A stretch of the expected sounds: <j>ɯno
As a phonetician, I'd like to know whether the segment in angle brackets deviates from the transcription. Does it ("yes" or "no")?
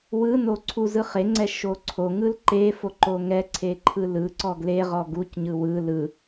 yes